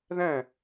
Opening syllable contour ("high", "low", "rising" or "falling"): falling